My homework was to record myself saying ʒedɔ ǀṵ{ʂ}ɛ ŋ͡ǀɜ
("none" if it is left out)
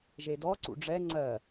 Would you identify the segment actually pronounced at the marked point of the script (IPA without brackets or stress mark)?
ɖ͡ʐ